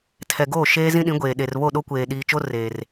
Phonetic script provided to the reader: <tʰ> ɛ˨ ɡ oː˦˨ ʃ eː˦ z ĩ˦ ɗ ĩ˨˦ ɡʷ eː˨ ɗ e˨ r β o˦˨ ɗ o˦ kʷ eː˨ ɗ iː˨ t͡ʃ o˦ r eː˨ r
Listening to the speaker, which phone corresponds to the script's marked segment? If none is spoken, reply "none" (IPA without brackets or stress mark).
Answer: tʰ